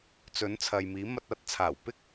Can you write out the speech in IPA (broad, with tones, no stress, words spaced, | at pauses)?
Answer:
t͡sɵ˨˥nt͡sʰɐ˨j miː˨˥mɐ˧t̚ɐ˨˥t̚t͡sʰaː˨˩w pɪ˥k̚